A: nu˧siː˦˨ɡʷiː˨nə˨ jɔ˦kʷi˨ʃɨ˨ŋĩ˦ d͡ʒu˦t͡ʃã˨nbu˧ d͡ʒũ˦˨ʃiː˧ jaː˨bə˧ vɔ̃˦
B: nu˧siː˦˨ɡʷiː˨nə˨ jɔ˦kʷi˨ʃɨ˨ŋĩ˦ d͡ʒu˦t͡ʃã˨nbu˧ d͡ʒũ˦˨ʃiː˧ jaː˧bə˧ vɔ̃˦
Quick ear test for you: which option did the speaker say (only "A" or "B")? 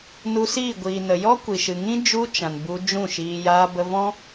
B